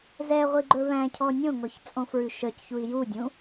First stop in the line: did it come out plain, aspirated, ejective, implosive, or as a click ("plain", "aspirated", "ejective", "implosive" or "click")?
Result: click